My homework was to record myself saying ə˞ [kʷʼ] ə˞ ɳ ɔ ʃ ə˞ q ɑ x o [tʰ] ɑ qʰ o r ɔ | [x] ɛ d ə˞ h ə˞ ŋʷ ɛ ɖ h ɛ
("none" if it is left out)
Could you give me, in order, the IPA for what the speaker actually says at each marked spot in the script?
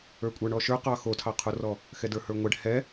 kʷʼ, tʰ, x

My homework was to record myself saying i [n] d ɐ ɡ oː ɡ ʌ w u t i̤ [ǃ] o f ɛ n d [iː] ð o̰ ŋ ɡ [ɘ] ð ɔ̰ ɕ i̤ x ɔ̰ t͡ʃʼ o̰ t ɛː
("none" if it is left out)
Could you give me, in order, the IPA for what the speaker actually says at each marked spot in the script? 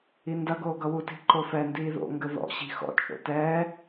n, ǃ, iː, ɘ

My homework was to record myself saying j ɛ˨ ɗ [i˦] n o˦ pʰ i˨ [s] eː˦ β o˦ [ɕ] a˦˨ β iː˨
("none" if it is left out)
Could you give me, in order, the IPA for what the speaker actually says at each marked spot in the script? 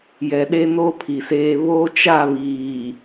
e˦, s, t͡ʃ

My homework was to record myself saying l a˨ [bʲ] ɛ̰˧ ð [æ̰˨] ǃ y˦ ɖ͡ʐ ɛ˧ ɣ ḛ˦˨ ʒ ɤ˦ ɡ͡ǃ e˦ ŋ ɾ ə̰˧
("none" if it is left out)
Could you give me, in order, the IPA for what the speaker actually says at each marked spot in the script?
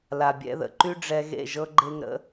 bʲ, ə̰˨

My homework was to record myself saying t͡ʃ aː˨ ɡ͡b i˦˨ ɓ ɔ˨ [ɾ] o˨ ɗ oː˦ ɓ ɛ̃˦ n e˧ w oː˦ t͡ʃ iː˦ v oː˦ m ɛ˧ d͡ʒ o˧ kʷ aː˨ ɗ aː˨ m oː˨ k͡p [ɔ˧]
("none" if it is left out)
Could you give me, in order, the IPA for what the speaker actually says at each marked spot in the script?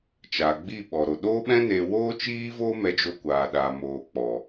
ɾ, ɔ˨

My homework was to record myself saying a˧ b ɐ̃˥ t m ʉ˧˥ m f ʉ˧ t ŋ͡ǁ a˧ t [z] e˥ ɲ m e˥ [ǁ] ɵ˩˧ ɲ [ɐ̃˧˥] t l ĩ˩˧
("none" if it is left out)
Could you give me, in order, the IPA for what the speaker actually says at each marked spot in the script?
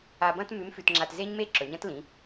z, ǁ, ɐ̃˧˥

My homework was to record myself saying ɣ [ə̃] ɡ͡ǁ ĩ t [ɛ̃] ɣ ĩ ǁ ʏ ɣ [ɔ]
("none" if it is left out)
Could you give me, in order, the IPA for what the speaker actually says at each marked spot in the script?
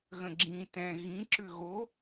ə̃, ɛ̃, o

